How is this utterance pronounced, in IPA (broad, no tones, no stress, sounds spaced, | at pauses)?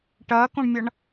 ʈ ɐː k õ ɳ mʲ ʌ ɳ